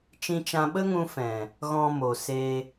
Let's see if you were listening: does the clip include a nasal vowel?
yes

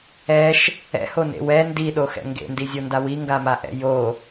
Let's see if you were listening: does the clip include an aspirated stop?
no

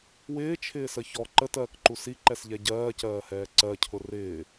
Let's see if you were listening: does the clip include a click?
yes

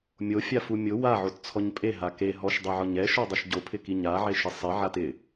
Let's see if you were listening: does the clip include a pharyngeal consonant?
yes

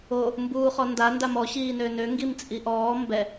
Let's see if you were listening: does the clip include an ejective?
yes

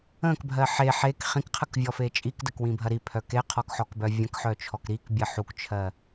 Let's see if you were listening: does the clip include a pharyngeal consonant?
yes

